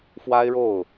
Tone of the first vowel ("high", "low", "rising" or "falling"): high